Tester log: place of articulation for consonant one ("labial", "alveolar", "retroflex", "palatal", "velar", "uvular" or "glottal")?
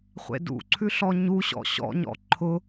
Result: uvular